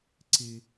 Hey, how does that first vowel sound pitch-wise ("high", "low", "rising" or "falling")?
high